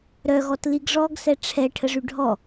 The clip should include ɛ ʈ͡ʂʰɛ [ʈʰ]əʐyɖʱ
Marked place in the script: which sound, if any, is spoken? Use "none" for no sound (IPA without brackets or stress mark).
ʈʰ